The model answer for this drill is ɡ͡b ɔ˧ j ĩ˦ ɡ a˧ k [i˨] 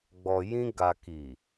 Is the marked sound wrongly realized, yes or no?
no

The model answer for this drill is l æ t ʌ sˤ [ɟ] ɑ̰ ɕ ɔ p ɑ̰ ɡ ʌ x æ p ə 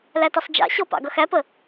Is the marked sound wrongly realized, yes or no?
yes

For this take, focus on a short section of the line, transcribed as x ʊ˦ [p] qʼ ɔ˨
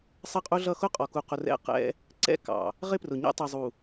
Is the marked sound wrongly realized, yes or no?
yes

